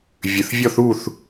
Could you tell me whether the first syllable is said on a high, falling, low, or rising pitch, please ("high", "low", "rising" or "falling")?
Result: low